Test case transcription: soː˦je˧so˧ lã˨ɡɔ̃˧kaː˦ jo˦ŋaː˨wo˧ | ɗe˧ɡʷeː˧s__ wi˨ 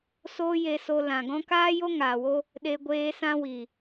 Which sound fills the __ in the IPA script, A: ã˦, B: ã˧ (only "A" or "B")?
B